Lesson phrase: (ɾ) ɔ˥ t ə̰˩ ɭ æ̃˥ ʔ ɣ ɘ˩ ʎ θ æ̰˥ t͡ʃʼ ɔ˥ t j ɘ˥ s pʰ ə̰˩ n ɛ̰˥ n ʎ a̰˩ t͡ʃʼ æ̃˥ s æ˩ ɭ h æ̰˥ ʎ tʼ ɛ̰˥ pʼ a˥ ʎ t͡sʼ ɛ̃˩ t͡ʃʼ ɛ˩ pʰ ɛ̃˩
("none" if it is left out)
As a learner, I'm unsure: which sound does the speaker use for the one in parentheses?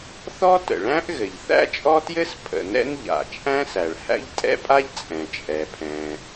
θ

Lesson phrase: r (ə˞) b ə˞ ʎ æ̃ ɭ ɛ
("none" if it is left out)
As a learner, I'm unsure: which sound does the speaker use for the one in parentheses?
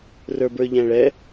ə˞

